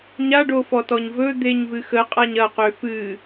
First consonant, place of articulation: palatal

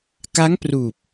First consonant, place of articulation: velar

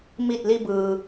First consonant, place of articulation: labial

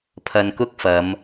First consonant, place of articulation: labial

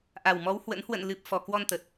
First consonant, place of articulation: glottal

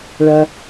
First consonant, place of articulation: retroflex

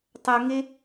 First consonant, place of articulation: alveolar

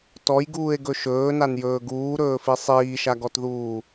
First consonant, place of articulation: alveolar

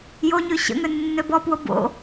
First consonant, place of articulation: palatal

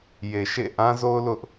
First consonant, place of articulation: palatal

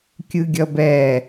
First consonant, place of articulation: velar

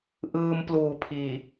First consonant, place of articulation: glottal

